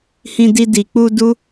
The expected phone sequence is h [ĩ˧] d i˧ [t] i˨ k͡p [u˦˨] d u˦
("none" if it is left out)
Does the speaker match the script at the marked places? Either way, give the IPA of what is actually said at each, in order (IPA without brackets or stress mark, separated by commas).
ĩ˧, d, u˧